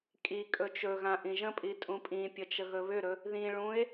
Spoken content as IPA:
kʼ i kʼ ɵ t͡ʃ ɵ ɣ ã ʔ ĩ ʒ ə̃ pʼ i tʼ ũ pʼ ĩ pʲ ə t͡ʃ ə ɣ ɵ β ʏ ɾ ɵ | ð ĩ ɭ ũ e̯

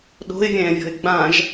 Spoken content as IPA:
ɗ o̤ ɪ̯ vʲ ɛ̃ː vʲ ɔ̤ ɪ̯ ɡ͡b ã ʒ

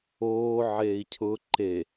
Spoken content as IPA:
oː ʕ eː i̯ cʰ ʊ ǃ e

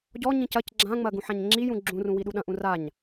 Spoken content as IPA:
ɟ ɔ ɲ ĩ c ɐ c ɡ͡ǁ ã ŋ͡m ɐ ɡ ũ ħ ã ɲ ŋ͡ǁ i j ũ ɡ͡ǁ ũ r ũ w i ɗ u ɗ ɐ̃ ʔ ũ r a ɲ

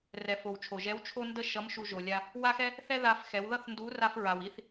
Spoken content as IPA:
r ɛ˩ f o˩ w t͡ʃʰ o˩ ʒ ɛ˧˥ w t͡ʃʰ o˥ n d ə˥ ʃ ʌ˧˥ m ʃ u˧ ʒ o˩ lʲ a˧ | w a˥ x ɛ˥ | θ ɛ˥ ð a˧ f x ɛ˩˧ w ð ʌ˥ θ n d u˧˥ r a˧ f ɹ a˩ w i˧ θ

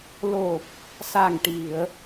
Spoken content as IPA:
l o˨˩ p̚ | s a˨˩ ŋ ʈ i˨˩˨ ə̯

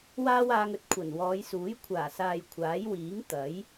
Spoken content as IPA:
w aː˥ w aː˧ ŋ ɵ˧ t̚ kʷʰ ɐ˨˩ n w ɔː˨˧ j s uː˨˥ j kʷʰ aː˨˩ s aː˨ j kʷʰ aː˨˥ j w iː˨˥ ŋ t̪ ɐ˨˥ j

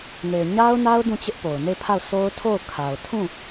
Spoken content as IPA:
ŋ e˨ ɪ̯ ɲ a˦ ʊ̯ n a˦ ʊ̯ d ũ˦˨ t͡ɕ ɪ˦ ʔ p o˨ ʊ̯ n e˦˨ ɪ̯ pʰ a˦˨ ʊ̯ s o˦ ʊ̯ tʰ o˦˨ ʊ̯ kʰ a˨ ʊ̯ tʰ ũ˦˨

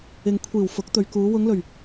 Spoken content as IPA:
ɪ˨ ŋ kʷʰ iː˨˩ w f ʊ˨˥ k̚ t̪ ɵ˨ ɥ k uː˨˧ w ʊ˨˧ ŋ l ɵ˨˩ ɥ

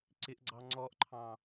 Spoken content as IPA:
ǀ ɪ ʔ ɡ͡ǀ ɑ ŋ͡ǀ ɔ ʔ ǃʰ ɑ̃

